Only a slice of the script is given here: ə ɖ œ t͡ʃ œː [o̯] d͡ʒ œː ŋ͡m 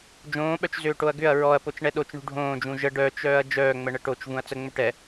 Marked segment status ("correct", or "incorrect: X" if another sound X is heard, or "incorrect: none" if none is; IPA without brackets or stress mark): incorrect: ɐ̯